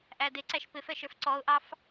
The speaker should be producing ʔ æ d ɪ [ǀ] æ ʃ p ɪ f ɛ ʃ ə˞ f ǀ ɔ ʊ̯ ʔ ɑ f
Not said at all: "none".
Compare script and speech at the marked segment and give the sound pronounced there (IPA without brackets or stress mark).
ǀ